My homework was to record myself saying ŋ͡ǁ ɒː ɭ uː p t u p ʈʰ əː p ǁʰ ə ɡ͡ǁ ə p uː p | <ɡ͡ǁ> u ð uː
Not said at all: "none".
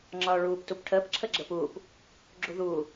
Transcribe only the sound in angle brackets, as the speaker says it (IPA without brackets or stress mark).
ɡ͡ǁ